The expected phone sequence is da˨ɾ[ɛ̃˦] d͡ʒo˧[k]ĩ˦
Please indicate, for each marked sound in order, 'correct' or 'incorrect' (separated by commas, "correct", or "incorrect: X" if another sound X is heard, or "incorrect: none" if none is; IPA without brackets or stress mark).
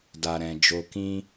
incorrect: ɛ̃˨, correct